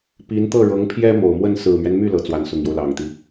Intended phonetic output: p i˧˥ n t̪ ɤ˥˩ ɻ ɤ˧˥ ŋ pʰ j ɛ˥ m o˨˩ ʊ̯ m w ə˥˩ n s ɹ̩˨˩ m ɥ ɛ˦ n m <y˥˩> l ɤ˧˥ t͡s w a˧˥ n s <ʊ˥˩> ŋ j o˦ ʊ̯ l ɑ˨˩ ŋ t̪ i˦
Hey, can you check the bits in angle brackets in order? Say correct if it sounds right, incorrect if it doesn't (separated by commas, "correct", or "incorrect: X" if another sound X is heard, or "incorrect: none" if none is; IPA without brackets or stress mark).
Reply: correct, incorrect: ʊ˨˩